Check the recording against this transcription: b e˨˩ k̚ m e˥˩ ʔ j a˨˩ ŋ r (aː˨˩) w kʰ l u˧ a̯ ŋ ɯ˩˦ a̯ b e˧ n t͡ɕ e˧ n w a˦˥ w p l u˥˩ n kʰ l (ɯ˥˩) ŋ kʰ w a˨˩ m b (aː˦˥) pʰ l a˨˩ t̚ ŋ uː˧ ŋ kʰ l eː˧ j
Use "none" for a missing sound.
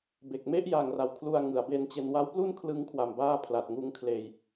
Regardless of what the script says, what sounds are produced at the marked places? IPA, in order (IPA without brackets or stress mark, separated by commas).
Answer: a˨˩, ɯ˦˥, aː˥˩